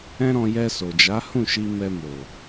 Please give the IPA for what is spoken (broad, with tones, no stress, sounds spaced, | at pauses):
ɛ̃˦ ɾ ɔ̃˧ j ɛ˧ s o˨ d͡ʒ a˨˦ h ũ˦˨ ʃ i˧ m ɛ˧ m o˨